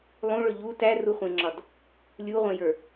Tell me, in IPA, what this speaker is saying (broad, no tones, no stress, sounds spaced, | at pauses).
lˠ ũ ɭ ɵ ʎ u t æ r u χʷ ẽ ŋ͡ǁ ɒ d | lʲ u ʁʷ ẽ j ə˞